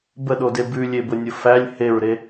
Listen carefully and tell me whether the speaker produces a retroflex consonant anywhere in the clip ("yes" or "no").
no